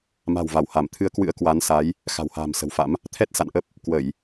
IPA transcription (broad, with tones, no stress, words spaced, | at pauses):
ma̤˨˩wva˧˩wha˧˩mt̪ʰɨ˨˦ə̯ kwɨ̰˧˥ə̯kwa˨˦nsa˨˦j | xa̤˨˩wha̤ː˨˩msə̤˨˩wfa̰˧˥m | t̪ʰɛ˦˥t̚ sa̰˧˨nʔə˦˥p̚ | kwə˧˩˨j